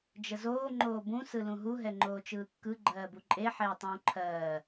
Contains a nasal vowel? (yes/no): yes